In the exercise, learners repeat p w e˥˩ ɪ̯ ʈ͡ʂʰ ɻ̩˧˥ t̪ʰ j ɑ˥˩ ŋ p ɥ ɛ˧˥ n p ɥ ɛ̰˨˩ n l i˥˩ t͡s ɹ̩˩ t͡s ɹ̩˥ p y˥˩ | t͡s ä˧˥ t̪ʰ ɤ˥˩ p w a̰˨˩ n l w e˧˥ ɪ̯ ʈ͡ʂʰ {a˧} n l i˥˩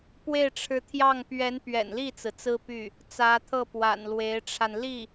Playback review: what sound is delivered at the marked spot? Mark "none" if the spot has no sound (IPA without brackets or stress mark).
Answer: a˧